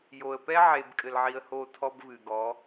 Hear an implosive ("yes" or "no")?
no